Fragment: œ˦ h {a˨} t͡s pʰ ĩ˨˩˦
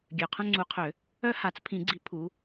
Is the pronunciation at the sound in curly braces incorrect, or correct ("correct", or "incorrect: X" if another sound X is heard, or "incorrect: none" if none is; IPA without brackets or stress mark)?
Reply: incorrect: a˨˩˦